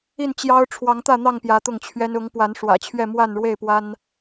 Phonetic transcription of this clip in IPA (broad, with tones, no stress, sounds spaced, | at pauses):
i˥˨ n t͡ɕ j ɑ˦ ʊ̯ ʈ͡ʂʰ w ɑ˨˦ ŋ t̪ ä˥˨ n̪ ɑ˥˨ ŋ p j ä˨˦ t̪ ʊ˥˨ ŋ t͡ɕʰ ɥ ɛ˦ n ʊ˨˦ ŋ p w a˨˦ n ʂ w ä̰˨˩ t͡ɕʰ ɥ ɛ˥˨ m w a˥˨ n ɻ w e˥˨ ɪ̯ p w a˦ n